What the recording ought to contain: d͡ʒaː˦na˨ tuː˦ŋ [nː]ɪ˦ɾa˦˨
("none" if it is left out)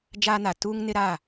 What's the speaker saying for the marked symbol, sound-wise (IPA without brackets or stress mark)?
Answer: n